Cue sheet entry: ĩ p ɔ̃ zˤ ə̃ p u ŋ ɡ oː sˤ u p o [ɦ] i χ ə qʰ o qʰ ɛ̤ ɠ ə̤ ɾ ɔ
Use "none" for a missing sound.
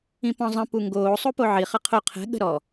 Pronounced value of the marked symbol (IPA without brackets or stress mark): ʕ